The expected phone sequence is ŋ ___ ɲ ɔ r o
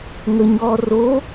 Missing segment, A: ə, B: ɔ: A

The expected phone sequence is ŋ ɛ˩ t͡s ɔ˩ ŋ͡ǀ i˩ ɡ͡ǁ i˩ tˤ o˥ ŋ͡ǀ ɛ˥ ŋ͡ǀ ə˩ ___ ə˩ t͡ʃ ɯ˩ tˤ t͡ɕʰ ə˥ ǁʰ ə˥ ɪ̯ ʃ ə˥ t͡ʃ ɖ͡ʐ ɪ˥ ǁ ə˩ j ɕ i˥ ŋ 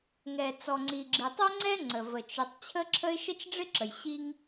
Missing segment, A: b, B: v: B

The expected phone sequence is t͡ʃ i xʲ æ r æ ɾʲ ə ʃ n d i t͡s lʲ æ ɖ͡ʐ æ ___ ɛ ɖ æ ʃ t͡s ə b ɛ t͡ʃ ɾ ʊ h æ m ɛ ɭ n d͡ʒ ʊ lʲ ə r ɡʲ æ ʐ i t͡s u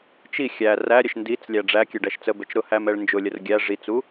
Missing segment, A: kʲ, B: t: A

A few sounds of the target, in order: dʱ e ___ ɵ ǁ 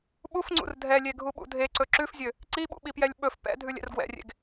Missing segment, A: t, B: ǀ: B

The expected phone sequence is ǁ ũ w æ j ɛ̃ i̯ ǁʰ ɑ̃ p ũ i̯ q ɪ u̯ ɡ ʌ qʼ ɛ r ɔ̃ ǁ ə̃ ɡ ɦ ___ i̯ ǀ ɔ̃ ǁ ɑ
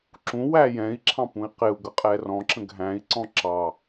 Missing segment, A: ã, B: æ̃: B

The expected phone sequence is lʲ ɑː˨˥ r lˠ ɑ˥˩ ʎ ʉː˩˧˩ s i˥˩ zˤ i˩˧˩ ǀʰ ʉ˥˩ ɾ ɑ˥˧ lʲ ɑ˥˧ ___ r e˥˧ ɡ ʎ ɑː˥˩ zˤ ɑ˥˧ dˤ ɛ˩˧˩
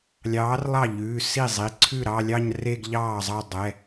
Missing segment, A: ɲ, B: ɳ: A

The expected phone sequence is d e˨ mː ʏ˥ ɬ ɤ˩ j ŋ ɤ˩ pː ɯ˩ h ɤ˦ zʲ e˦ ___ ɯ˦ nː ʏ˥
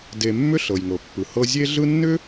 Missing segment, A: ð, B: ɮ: B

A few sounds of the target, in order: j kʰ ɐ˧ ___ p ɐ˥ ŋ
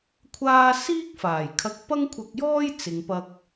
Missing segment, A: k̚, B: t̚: A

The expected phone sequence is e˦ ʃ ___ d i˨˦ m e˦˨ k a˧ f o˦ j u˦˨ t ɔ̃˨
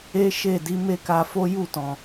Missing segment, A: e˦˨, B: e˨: A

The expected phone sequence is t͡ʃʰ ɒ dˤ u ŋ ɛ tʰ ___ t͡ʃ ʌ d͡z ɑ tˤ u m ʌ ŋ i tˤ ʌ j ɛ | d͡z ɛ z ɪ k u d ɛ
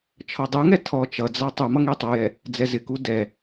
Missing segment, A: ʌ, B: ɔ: B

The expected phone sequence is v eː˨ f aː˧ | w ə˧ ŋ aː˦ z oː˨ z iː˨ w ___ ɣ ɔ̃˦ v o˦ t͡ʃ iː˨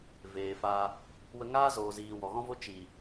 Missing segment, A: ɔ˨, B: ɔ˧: A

